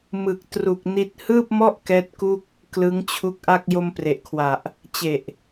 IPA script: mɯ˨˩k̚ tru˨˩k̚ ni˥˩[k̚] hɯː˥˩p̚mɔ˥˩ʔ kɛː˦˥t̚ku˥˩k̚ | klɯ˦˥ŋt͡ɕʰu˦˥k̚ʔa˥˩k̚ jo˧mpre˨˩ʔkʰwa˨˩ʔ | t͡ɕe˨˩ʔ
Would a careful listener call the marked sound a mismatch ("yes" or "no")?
yes